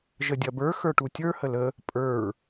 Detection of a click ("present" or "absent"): absent